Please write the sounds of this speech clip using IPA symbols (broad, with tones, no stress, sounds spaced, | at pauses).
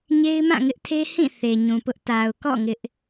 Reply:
ɲ e˦ ɪ̯ m ã˦˨ ŋ ɪ˦ ʔ tʰ e˦ h ĩ˦˨ θ e˨ ɲ ũ˨ p ʊ˦ ʔ t a˨ ʊ̯ k ɔ̰˦˨ ŋ ɪ˦ ʔ